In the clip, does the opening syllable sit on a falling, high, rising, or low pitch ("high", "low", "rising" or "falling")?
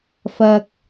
low